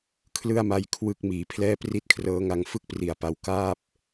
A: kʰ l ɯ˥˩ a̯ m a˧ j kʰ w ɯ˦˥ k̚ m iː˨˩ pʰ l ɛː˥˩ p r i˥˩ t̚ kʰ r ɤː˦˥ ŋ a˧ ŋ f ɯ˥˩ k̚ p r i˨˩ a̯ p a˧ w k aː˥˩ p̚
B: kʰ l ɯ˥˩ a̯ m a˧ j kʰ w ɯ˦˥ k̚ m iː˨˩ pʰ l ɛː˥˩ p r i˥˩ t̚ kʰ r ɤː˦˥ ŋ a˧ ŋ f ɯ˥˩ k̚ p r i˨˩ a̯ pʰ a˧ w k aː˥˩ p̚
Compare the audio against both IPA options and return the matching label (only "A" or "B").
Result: A